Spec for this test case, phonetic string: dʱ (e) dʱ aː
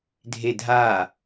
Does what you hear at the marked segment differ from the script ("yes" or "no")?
no